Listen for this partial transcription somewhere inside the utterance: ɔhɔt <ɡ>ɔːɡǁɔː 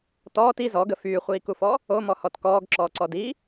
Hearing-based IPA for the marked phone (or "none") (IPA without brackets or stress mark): k